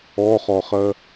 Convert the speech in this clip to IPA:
ɔ χ ɔ χ ɜ

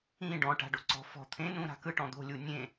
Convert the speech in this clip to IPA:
ĩ ɖ ɔ̃ ʈ a̤ ɖ o ǀ ɔ̤ f ɔ̤ t̪ʰ ẽ n ũ ɾ a̤ k ɯ ʈ ɔ̃ d̪ o̤ lʲ u nʲ ẽ

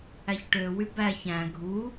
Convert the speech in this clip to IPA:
æ ç ʈ ø w y b æ ç æ̃ ɡʱ u

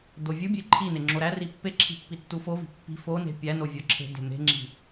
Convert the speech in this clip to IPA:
d o vʲ u bʲ e ǃʰ i n e ŋ͡ǁ o ɾ æ r i pː e ǁʰ i̤ pː i tː u f o v i̤ pː i̤ f o n e̤ pʲ æ n o vʲ ɒ ǁʰ e̤ d e̤ m e̤ ŋ͡ǁ i̤

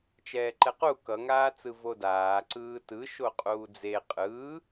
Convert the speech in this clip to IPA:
t͡ʃ ɛː ǃ ɛ q u k ʌ ŋ aː t͡s ɯ v o d aː ǀ ɯː t ɯ ʃ o qʼ uː d͡z e qʼ ɯː

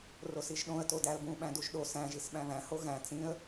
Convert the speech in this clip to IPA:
r o s i ʒ ɗ õ ə̯ t o d æ ə̯ b ũ ɓ æ̃ d u ʒ ɗ o s æ̃ ʒ i s ɓ æ̃ β æ̃ h o ɣ æ̃ t͡s ĩ ə̯

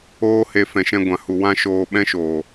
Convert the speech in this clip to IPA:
oː˦ h e˧ f ɛ̃˨ ʃ ɛ̃˧ ɡʷ ã˨ h u˨ w ã˦ ʃ oː˧ ɓ ɛ̃˦ ʃ oː˨

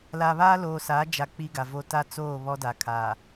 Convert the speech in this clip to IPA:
l a˨ β aː˦ l oː˨ s aː˨˦ d͡ʒ a˨ k͡p i˦ ɡ a˨ v o˦ t a˦ t͡s oː˦˨ β ɔ˦ d a˨ kʰ aː˨

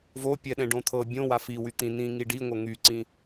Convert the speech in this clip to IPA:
v o pʲ ɛ ɗ ɛ̃ ɖ õ t̪ʰ ɤ bʲ õ w a f i w y t̪ ĩ n ĩ ŋ i ɖ i ŋʷ ɤ ŋ y ǀ ĩ

